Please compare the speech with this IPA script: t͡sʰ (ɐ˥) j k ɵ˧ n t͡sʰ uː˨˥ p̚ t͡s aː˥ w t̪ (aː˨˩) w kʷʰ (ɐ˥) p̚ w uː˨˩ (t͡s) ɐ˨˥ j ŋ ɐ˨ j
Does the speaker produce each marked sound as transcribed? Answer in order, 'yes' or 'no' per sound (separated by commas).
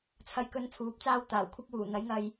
no, yes, yes, no